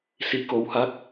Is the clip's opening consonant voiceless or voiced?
voiceless